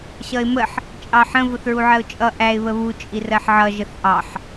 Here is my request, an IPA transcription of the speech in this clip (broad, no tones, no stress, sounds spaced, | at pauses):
ɕ ʌ ɪ̯ m ə ħ | t͡ʃʼ ɑ ħ ə̃ v ʊ θ ɹ u ʕ ɜ ʊ̯ t͡ʃʼ ʌ ʔ æ ɪ̯ β ə β u t͡ʃʼ i r ɜ ħ ʕ ʌ ʒ ə θ ʔ ɑ ħ